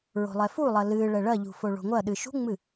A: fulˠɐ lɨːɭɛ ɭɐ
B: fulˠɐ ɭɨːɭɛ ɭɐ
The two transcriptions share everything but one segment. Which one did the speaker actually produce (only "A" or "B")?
A